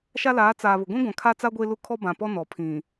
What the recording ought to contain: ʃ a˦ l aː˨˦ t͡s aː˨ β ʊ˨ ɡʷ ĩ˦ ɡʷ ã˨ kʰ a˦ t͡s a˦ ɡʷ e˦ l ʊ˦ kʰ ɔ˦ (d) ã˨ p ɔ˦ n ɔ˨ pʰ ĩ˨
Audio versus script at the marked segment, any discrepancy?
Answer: yes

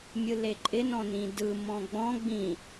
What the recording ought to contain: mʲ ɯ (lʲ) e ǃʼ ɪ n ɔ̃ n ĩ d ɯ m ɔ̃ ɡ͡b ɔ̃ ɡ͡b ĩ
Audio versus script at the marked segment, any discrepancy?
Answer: yes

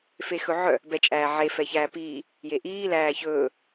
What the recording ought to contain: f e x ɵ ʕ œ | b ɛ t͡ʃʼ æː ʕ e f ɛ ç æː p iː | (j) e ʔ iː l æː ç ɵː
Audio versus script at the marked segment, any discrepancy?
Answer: no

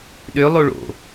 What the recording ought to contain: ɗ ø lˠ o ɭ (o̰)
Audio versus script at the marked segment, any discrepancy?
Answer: no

